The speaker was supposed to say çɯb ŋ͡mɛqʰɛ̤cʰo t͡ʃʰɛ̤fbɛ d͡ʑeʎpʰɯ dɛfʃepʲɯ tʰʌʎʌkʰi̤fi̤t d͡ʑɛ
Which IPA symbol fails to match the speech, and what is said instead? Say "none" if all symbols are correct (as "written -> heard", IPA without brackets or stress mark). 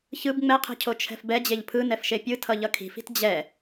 d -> n